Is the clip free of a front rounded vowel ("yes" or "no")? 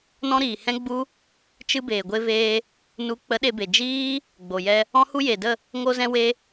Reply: yes